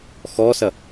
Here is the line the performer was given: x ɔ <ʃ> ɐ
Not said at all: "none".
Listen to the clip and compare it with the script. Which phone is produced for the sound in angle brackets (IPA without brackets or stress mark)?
s